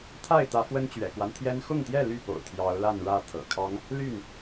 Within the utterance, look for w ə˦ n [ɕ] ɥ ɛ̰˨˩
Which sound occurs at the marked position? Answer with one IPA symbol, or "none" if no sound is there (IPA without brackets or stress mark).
t͡ɕ